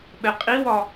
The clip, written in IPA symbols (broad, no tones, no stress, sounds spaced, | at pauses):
ɓ ɛ qʼ i w ɒ